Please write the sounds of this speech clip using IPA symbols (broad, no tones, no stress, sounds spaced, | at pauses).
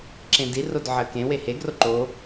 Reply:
ǁ ẽ d i r o d ʕ ɜ k ẽ w e h e ɡ r o ǃ o